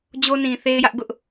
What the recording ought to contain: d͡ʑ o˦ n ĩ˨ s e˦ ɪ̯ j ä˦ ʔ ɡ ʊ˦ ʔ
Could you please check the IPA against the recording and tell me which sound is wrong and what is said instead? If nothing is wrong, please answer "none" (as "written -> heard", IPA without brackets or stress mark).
s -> θ